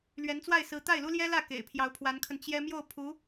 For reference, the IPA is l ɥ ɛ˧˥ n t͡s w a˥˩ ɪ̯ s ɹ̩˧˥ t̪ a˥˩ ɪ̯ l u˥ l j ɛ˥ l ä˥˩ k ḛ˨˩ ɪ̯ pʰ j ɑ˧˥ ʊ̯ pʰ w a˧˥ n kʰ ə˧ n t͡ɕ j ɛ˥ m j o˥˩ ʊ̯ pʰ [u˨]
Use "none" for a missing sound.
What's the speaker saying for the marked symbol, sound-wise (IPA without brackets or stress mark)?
u˧˥